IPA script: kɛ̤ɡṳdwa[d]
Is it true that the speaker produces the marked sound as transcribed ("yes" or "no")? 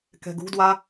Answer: no